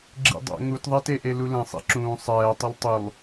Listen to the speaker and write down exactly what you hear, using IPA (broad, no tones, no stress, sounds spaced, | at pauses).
ɡ͡ǁ ḭ dˤ ɛ̰ ŋ u t ðˤ ɛ t e ʔ e l u l ɛ̃ sˤ ḭ ǁ ũː sˤ ɛː tˤ e lˠ tˤ u lˠ